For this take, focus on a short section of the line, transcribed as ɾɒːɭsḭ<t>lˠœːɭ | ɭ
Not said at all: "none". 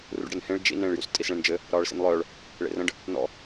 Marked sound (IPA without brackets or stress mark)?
n